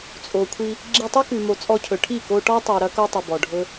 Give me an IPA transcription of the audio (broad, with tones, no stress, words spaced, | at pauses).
t͡sʼo˨kʷʰi˧ | ɡ͡ǁi˧tˤʉ˦kʉ˨mo˨ t͡sʼɔ˧cʰɵ˨ʈʰi˦˨ ko˧ʈɔ˦tˤi˨ ɾɐ˦ko˦ tˤi˨bɔ˨ɖʱɵ˦